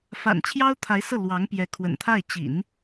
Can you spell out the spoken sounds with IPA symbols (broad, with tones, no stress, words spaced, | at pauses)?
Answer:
fa̰˨˩nt͡ɕʰjɑ˥ʊ̯ t̪ʰa˧˥ɪ̯sɤ˥˩ lwɑ˧˥ŋ pjɛ˧˥kʰwə̰˨˩nt̪ʰa˥˩ɪ̯ t͡ɕḭ˨˩˦n